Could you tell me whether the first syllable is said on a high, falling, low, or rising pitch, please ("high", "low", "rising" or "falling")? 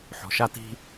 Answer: low